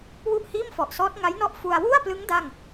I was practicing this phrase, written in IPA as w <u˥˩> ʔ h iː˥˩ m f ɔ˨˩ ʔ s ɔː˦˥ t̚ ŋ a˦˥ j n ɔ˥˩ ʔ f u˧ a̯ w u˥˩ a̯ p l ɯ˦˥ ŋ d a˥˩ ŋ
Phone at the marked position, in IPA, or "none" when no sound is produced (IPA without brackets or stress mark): u˥˩